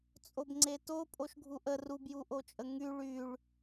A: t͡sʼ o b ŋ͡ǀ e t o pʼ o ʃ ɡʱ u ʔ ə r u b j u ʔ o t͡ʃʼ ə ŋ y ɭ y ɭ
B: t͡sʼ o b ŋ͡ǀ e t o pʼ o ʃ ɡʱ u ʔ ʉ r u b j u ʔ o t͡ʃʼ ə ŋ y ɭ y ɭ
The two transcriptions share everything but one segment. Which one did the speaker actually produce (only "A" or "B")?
A